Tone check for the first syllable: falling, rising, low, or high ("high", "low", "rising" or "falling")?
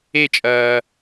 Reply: falling